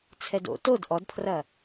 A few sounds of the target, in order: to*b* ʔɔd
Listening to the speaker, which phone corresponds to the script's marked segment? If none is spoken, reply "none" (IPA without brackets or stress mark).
d